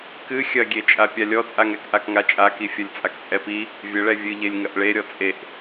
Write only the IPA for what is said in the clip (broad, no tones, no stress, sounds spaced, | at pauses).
k ɨ xʲ ɐ ɡʲ e t͡ʃʼ a pʲ a lʲ ɔ t͡sʼ a ŋ ɛ k ʔ a k ŋ a t͡ʃʼ a k i fʲ ɐ lʲ t͡sʼ a k t͡sʼ ɛ p i | vʲ ɘ ɭ ɛ vʲ ɨ ʎ e lʲ ŋ ɐ ʔ ɭ e ɾʲ ɔ t͡sʼ e ʔ